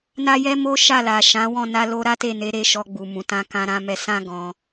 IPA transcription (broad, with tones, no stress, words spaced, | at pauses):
na˦jɛ˦mo˦ ʃa˦˨la˨ʃã˨˦ wɔ̃˦˨na˧lo˧ ɾa˦te˦˨ne˨˦ɾe˧ ʃɔ˧ ɡ͡bu˨mũ˨ tã˧kã˧ɾã˧mɛ˧ sã˦ ɡɔ̃˧